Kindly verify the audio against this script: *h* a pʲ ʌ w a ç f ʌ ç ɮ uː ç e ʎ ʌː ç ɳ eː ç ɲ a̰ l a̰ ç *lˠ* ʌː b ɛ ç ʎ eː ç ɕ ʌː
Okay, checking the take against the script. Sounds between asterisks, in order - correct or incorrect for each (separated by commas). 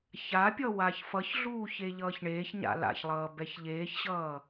incorrect, correct